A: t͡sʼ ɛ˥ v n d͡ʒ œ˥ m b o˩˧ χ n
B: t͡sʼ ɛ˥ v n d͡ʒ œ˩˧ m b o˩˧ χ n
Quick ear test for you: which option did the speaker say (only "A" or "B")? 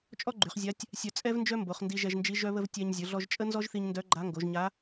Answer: A